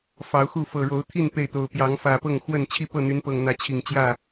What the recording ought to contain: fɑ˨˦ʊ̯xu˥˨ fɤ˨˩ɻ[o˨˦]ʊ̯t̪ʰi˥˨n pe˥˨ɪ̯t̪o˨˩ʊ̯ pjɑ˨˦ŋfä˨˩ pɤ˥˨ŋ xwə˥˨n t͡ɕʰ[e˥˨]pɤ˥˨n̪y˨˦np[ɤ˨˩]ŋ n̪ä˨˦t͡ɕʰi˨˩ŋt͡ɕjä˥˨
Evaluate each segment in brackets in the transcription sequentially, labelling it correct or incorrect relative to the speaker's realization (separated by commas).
correct, incorrect, correct